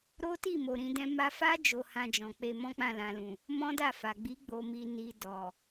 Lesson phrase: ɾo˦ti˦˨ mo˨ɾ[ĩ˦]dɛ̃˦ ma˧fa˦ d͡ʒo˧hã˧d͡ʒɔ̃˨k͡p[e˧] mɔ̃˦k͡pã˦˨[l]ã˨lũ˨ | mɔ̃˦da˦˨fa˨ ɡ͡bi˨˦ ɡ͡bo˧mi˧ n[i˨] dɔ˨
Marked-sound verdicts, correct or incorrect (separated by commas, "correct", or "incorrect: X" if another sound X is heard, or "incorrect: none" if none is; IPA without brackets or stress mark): incorrect: ĩ˧, correct, correct, correct